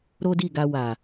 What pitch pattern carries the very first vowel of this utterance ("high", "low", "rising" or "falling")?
high